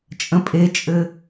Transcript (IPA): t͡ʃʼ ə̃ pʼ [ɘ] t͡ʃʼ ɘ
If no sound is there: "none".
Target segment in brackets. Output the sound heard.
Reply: e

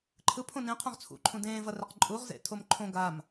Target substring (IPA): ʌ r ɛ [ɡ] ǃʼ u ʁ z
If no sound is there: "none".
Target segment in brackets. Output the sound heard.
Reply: q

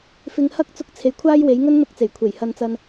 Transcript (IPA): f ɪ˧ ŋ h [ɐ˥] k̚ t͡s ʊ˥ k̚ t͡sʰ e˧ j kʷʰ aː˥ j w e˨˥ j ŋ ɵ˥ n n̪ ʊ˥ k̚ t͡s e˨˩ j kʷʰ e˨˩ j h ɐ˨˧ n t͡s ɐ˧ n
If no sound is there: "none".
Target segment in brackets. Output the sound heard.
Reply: ɐ˥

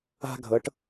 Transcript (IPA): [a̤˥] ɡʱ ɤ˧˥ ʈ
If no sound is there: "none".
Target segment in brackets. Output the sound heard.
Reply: a̤˥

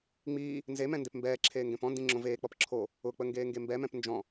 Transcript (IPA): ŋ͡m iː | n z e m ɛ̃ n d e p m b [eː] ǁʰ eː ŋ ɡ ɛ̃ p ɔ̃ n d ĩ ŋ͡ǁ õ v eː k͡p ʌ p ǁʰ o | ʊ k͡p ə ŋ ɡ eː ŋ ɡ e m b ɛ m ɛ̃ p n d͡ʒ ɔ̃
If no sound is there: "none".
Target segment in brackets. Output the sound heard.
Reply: ɛː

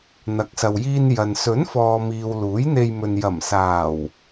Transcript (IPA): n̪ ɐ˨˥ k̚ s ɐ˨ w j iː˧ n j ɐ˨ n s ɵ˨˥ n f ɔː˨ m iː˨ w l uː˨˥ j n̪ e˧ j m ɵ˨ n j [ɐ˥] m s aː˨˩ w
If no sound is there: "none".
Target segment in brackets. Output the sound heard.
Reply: ɐ˨˩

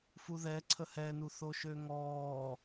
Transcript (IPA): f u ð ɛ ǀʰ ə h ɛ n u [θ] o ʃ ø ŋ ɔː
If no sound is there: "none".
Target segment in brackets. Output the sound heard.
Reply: θ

